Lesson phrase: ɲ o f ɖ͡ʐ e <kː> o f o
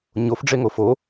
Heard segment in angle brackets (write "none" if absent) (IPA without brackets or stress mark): ŋ